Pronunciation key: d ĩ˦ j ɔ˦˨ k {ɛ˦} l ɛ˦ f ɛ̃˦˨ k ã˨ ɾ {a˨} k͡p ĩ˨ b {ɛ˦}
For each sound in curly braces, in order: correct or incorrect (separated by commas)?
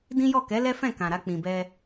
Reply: incorrect, incorrect, incorrect